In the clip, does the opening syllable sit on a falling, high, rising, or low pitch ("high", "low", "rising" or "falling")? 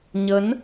rising